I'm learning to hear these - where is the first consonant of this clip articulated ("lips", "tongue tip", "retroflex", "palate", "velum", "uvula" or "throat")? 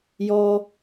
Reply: palate